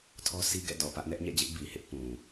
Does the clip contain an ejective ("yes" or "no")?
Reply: no